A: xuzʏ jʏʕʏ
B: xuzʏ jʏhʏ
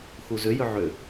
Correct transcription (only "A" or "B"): A